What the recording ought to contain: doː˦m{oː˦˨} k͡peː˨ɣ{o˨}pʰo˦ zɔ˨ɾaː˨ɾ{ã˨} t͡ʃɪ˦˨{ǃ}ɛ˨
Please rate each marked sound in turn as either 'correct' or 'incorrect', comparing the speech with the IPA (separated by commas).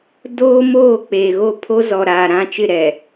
correct, incorrect, incorrect, incorrect